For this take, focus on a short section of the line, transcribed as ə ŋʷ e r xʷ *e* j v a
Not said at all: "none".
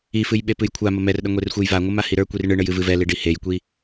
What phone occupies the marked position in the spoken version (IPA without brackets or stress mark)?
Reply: e